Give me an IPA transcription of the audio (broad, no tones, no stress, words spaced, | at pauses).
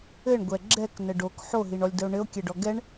ɘɳɡʷɛ ɡ͡ǁɛknə ɖok ħoɦiɳɔlʲdəo̯ ɳɘo̯kʲɛɖɔ ɡɛɳ